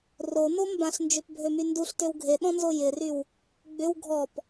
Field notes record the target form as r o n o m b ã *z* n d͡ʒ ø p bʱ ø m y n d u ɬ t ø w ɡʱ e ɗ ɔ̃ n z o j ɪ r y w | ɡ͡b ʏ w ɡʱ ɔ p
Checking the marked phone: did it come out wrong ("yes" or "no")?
yes